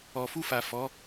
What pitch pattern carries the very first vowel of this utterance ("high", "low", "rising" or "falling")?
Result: low